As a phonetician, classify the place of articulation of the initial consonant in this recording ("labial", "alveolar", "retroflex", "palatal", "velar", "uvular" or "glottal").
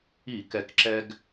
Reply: velar